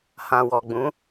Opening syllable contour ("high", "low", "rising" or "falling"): low